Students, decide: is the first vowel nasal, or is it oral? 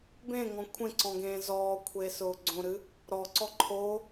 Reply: nasal